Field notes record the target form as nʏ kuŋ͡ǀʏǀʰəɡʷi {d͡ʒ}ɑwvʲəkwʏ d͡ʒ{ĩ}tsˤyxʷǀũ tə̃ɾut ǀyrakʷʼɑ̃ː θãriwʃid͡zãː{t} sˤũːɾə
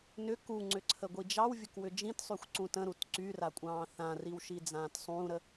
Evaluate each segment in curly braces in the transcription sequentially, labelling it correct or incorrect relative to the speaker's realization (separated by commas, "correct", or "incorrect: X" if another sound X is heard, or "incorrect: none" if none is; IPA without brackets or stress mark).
correct, correct, correct